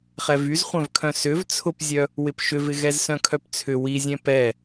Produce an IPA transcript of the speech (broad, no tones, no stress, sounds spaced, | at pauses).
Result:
χ ɛ v y z χʷ œ̃ v kʰ œ̃ s ʏ v t͡sʰ ʊ p zʲ œ | w ɪ p ʃ ʏ v ɪ ɣ ɛ z s œ̃ kʰ œ p t͡sʰ ʏ w i zʲ ɛ̃ p ɛ